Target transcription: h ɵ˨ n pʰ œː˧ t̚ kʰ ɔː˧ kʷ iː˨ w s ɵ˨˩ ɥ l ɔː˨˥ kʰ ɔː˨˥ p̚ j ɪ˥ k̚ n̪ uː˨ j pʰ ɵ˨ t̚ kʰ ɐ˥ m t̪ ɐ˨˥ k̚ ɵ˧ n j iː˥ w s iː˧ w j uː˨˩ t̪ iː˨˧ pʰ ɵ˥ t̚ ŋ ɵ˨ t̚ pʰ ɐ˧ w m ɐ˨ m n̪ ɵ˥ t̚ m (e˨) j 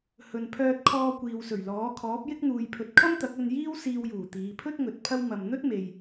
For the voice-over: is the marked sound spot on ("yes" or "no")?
yes